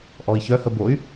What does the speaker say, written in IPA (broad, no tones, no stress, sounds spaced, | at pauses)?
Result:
ʔ ɔ i̯ ç œ h ə b o y̯